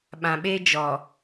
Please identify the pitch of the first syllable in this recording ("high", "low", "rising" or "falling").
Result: low